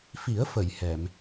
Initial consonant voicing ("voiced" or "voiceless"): voiceless